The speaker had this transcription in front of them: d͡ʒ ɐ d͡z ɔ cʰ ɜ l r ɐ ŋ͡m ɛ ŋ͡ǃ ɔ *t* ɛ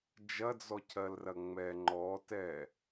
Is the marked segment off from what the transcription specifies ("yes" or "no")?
no